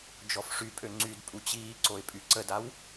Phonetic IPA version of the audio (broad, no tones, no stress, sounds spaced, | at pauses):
d͡ʒ ɔ f ʂ y pʼ ø ŋ͡ǀ y d pʼ u t͡ɕ iː ǀ o ɪ̯ pʼ y ǀ ə d a w